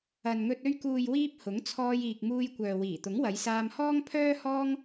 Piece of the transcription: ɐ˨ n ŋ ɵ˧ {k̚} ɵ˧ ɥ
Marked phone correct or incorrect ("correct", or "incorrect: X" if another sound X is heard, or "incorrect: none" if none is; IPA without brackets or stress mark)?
incorrect: t̚